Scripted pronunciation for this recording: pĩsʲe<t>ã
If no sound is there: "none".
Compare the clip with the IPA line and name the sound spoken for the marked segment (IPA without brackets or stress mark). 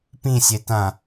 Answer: t